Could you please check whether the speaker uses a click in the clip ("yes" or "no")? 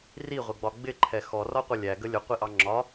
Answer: yes